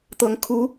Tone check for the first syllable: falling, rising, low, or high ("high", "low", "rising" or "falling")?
rising